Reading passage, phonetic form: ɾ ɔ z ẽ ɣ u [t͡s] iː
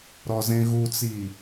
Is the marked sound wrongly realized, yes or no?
no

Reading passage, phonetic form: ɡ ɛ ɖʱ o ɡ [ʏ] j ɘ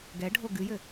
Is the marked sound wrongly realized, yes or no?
yes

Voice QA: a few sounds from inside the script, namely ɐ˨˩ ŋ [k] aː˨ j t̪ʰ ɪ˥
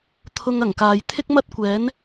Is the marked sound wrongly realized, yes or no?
no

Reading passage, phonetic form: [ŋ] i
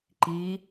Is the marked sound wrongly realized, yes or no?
yes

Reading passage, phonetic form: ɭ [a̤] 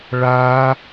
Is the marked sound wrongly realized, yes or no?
yes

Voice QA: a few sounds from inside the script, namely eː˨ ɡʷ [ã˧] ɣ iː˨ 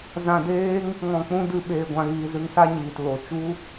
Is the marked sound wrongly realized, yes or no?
yes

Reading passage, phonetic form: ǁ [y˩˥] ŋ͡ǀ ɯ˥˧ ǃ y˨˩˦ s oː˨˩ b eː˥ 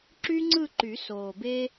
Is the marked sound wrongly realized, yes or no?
yes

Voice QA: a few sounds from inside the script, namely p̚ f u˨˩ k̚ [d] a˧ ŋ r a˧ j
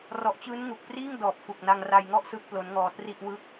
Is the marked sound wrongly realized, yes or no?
yes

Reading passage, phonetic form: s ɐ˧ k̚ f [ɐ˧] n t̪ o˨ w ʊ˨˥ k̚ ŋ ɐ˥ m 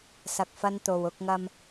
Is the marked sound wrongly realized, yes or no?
no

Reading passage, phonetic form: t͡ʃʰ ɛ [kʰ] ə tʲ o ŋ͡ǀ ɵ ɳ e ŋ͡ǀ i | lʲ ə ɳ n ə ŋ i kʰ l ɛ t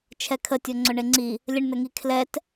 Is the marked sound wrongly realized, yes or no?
no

